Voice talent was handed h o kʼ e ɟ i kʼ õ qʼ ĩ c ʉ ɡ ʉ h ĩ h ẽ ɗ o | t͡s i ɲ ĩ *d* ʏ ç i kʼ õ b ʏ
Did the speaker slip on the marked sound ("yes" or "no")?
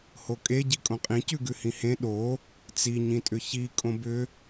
yes